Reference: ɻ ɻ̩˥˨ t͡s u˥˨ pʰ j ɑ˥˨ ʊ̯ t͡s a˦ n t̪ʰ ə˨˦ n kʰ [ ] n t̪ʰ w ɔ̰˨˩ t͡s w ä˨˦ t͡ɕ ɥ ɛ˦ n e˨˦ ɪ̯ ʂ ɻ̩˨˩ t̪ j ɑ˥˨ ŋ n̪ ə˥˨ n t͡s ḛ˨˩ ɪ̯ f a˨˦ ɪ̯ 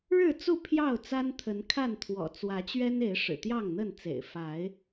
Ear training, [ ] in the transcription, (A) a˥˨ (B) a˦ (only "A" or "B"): A